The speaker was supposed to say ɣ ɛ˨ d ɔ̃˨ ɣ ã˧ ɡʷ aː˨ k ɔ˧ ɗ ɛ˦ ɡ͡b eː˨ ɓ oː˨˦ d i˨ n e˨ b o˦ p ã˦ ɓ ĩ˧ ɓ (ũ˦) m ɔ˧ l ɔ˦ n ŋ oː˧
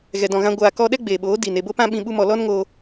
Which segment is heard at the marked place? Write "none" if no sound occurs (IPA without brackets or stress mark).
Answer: u˦